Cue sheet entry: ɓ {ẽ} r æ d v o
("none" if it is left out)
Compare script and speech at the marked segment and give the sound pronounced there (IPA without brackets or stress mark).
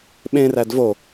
ẽ